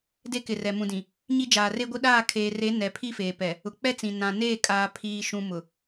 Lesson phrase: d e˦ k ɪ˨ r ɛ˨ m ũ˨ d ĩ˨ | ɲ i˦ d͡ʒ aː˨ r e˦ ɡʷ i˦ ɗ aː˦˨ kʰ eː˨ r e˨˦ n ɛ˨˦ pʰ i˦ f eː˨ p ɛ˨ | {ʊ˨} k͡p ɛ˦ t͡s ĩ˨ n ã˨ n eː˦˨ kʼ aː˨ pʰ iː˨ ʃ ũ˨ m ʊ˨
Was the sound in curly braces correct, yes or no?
yes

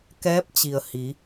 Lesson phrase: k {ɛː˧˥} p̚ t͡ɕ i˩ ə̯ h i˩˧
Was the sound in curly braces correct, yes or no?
yes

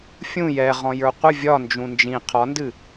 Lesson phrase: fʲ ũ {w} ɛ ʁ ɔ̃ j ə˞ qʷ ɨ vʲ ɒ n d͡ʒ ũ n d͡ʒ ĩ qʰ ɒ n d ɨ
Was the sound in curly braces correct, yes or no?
no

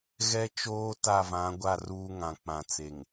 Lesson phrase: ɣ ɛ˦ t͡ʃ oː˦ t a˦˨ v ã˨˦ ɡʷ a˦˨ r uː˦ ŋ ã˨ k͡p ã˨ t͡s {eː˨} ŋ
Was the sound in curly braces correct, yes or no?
no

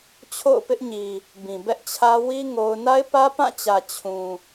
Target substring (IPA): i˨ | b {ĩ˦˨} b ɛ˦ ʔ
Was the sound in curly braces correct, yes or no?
no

